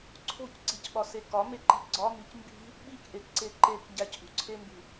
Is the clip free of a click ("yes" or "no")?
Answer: no